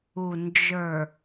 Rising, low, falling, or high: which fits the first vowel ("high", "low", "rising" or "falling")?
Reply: low